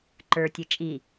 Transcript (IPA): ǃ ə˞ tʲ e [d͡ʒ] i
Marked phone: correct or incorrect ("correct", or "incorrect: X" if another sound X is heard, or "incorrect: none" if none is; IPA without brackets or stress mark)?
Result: incorrect: t͡ʃʼ